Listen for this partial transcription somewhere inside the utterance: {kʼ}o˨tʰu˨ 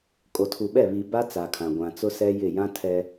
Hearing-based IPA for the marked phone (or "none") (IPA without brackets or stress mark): kʼ